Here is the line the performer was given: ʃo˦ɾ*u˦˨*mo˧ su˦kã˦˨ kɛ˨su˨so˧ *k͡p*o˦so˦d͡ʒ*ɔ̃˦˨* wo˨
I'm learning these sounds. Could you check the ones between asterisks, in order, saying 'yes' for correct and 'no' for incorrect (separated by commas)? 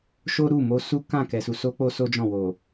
yes, yes, yes